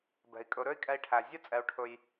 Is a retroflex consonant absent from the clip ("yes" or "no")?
no